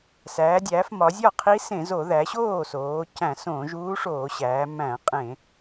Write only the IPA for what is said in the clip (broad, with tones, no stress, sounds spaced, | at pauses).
s æː˩˧ dʲ æː˩˧ f m ɒ˩˧ zʲ ɒ˥˩ qʰ i˧˥ s ẽ˧˩˧ z o˧˩˧ ð æ˩˧ ɕ oː˥˩ s oː˩˧ c æ̃˧˩˧ s õː˧˩˧ ʒ uː˧˥ ʂ oː˧˩˧ ɕ æː˩˧ m æ̃˧˩˧ qʼ ẽ˧˩˧